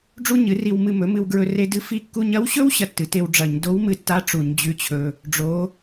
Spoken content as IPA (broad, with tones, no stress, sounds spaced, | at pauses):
ɖ͡ʐ u˥ ɲ ɨ˩˥ r i˧ w m ɨ˧ m ɵ˩˥ m ɨ˧ w ɡ ɹ ɵ˧ r e˧ d ɨ˧˥ f i˧ kː u˧ ɲ ɐ˧˥ w ɕ ɵ˥ w ɕ ɐ˥ tː ɨ˩˥ t e˧ w ɖ͡ʐ ɐ˧˩˧ ɲ d o˧˥ w m ɨ˧ tː a˧˥ ʈ͡ʂ u˧˩˧ ɲ d͡ʑ ʉ˧˥ t͡ɕʰ ɵ˧ | ɖ͡ʐ o˧˥